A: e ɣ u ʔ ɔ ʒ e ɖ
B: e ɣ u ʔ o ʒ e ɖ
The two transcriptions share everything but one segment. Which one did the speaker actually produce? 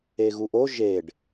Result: B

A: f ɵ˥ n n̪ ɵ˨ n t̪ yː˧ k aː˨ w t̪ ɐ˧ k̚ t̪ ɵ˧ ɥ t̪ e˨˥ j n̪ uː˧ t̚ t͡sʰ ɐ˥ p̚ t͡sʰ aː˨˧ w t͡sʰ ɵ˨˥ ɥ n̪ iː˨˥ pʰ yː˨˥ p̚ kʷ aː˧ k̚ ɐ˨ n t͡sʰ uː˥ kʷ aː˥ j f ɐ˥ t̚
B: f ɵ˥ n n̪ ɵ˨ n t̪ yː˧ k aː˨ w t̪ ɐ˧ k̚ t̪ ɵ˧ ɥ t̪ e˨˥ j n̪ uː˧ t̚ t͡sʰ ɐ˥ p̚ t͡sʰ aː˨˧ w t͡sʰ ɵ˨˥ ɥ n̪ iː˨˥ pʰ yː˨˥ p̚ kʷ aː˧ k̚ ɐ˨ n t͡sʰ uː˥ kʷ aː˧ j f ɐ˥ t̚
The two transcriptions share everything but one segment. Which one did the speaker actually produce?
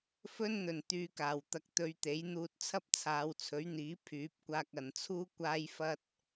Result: A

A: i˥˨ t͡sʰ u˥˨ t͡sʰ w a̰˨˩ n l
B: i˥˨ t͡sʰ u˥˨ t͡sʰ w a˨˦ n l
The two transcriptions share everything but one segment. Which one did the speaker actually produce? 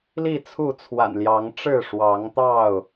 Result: A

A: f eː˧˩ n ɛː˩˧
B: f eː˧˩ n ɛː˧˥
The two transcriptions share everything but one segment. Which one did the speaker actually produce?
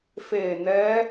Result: B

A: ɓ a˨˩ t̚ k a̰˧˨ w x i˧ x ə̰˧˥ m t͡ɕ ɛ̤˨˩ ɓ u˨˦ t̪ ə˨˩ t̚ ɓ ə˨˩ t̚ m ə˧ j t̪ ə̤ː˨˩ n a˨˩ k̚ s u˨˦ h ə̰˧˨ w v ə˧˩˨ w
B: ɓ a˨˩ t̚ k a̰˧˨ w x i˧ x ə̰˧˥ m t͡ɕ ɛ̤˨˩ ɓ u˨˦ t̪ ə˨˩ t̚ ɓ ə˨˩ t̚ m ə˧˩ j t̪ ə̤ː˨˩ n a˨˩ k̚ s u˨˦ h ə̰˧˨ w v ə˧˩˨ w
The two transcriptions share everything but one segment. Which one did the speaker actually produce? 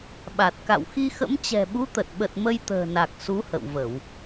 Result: A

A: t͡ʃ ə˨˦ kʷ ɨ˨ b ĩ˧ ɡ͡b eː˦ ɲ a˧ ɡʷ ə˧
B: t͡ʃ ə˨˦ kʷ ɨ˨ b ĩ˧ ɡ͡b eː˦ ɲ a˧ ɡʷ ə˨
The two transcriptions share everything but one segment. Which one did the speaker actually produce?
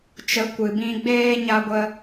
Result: A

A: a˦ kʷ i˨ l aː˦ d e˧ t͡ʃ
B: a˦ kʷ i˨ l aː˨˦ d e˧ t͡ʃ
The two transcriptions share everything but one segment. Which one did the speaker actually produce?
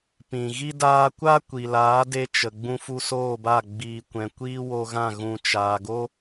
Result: B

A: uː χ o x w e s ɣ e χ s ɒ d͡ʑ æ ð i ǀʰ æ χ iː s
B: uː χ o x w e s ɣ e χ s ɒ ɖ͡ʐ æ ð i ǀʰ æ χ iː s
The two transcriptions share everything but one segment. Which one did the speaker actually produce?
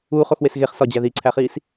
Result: A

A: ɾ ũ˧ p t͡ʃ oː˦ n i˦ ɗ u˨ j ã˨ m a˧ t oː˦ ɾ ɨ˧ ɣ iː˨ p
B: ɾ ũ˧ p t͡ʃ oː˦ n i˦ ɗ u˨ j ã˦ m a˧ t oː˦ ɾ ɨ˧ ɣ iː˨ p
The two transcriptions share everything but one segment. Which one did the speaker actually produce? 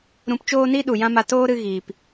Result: B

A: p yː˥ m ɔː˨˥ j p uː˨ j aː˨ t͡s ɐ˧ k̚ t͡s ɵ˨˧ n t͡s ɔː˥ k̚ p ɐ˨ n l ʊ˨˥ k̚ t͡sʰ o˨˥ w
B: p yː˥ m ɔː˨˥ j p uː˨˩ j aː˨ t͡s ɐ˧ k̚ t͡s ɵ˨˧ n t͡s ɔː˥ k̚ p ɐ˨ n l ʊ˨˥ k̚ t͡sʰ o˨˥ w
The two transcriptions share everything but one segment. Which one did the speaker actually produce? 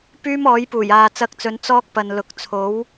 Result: B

